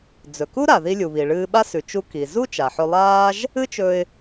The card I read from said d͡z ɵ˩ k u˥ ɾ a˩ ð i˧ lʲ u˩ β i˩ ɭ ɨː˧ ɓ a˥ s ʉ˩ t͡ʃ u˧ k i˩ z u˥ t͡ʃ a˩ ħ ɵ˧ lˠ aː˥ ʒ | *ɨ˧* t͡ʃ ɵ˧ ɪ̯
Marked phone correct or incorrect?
incorrect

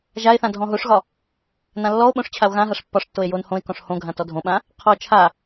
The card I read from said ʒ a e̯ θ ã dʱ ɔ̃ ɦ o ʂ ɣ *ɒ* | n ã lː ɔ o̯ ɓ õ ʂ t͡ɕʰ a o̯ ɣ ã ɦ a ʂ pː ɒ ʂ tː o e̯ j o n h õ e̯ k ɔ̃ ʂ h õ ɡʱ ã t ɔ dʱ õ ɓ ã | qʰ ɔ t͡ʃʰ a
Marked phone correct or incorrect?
correct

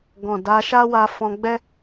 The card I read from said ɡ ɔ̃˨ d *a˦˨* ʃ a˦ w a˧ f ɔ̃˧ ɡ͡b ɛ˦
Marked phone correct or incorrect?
incorrect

